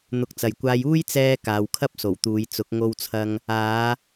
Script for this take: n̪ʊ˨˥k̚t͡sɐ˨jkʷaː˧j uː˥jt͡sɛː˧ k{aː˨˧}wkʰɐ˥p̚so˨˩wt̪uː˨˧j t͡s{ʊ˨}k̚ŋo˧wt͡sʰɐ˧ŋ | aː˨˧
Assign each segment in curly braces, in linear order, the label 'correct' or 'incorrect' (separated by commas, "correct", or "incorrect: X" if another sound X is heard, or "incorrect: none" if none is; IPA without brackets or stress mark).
correct, incorrect: ʊ˨˥